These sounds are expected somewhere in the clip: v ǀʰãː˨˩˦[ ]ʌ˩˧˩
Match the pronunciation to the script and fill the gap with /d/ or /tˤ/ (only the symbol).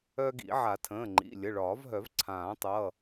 tˤ